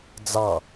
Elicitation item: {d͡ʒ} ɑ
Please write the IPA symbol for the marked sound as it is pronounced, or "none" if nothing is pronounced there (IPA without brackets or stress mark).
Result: d͡z